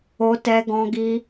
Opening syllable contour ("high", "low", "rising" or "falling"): high